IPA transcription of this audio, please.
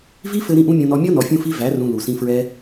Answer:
v i˦ f ɘ˧ ɾ ĩ˦˨ ʔ ũ˦ mʲ õ˧ n ɔ˧ mʲ ɔ˦ n ɔ˨ fʲ ũ˧ f i˧ v æ˨˦ r ũ˧ l u˨ s ĩ˧ f ɹ ɛ˦

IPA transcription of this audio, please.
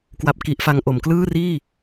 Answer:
k w a˦˥ p̚ k i˦˥ ʔ f a˦˥ ŋ ʔ o˩˦ m k l ɯː˥˩ r iː˥˩

